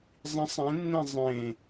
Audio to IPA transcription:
zˤĩsˤ ẽnːẽ zˤẽ

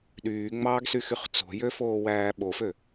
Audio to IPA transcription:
ɗyːŋ͡mɑːɡsyxyχ t͡so̤jøfoːwæː ɓofø

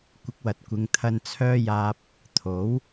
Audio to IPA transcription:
kʷɪ˨˥k̚wɐ˨t̚kʷɪ˨˧ŋt̪ʰɐ˧n t͡sʰœː˧jaː˨p̚ | t̪ʰo˨˥w

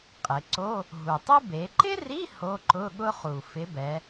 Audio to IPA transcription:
qʼɪ˩˧ǀo˧˥˧ | ɦu˨˩tˤu˥ be˩˧ǃɪ˥ri˧˥˧ ho˧˥˧ǃʊ˧˥˧ɠʊ˥χu˨˩ fɪ˨˥bɛ˩˧

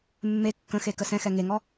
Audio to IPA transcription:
mːe kːə̃xe kəsɛ̃xɛ ŋeŋɔ

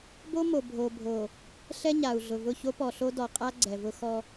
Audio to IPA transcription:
bo˦mo˨ bʱo˨bʱo˨ | ɬɛ˦ ɲa˨u̯ɮʊ˨vʊ˦˨ ço˦pɔ˨ɬo˦ dɔ˨qʼa˦ ɡ͡ǀɛ˨vʊ˦xɔ˦

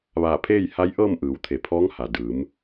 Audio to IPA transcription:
ʋaː˧˩pʰeː˥˨jha˧˥jʔɤː˥˨m ʔɯː˩˧wt̪ʰe˩pʰɔː˧˥ŋha˩ dɯː˩˧m

